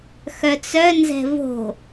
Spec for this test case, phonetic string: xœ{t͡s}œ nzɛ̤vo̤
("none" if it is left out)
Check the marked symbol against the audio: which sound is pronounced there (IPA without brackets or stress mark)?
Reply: t͡s